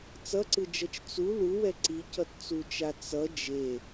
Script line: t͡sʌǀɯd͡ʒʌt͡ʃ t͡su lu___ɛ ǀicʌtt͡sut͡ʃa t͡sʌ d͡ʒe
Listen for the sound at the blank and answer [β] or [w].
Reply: w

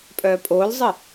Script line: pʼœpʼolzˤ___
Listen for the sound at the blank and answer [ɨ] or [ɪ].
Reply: ɨ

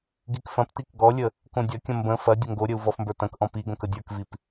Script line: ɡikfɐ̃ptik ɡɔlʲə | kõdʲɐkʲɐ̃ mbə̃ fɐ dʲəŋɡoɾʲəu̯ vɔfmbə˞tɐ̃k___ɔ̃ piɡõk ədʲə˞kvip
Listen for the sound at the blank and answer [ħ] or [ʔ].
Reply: ʔ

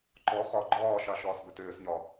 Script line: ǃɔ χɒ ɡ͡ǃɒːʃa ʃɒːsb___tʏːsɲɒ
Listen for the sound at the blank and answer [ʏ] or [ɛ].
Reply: ʏ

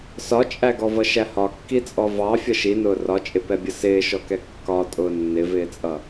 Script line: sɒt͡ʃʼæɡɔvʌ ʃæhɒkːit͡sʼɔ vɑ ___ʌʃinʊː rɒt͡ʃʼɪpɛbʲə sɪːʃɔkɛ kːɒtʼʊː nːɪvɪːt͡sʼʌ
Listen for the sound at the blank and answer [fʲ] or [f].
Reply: fʲ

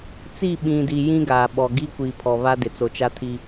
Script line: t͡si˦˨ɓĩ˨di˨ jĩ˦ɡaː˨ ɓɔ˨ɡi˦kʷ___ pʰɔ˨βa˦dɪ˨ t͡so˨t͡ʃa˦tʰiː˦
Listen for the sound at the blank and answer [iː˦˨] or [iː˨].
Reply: iː˨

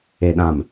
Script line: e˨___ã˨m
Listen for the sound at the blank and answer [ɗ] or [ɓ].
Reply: ɗ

